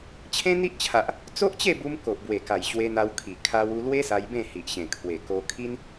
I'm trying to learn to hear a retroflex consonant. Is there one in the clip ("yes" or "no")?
no